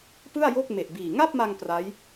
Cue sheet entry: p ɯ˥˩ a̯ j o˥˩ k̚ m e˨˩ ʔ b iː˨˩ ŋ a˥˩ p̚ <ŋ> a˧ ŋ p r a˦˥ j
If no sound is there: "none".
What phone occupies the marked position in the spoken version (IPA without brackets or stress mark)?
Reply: m